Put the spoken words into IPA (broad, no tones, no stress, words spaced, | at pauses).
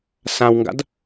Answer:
sãwŋɡa̰d